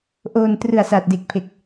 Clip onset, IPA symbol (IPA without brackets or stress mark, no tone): ʔ